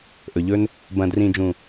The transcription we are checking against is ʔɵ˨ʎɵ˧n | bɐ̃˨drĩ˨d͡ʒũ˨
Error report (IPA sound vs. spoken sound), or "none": none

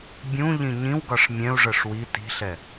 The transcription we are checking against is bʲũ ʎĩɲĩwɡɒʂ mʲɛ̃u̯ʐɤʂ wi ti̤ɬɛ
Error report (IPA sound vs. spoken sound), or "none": none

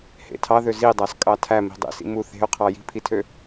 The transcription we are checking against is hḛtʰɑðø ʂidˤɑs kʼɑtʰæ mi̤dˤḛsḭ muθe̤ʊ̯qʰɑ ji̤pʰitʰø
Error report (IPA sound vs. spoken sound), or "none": ʂ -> z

